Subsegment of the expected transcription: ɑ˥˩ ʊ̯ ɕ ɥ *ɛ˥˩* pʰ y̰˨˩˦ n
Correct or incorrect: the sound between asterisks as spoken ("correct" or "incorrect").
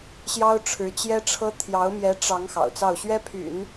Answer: incorrect